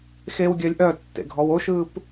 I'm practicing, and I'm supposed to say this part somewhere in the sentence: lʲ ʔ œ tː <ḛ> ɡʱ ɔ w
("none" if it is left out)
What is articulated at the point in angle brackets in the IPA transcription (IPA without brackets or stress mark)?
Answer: ḛ